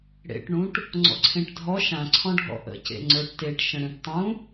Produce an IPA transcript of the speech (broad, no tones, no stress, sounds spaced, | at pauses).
ɽ ḛ ʈ ɳ ũ ʈ | ŋ͡ǀ ɔ̰ ǀʰ ẽ ʈ dʱ ɔ ʃ ã ǀʰ ɔ̃ ɖʱ ɔ̰ ʔ ə̰ c ḛ ŋ͡ǀ ə˞ ʈ t e ʈ ʃ ə̃ ɽ ẽ ʈ tˤ ũ